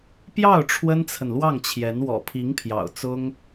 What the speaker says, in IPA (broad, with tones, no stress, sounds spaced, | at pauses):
p j ɑ˥˩ ʊ̯ ʈ͡ʂʰ w ə˥ n t͡sʰ ə˨ n l w ɑ˥˩ ŋ t͡ɕʰ j ɛ˧˥ n w ɔ̰˨˩ pʰ i˧˥ ŋ pʰ j ɑ̰˨˩ ʊ̯ t͡s ʊ˥ ŋ